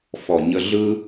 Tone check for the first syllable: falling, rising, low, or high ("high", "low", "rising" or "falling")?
low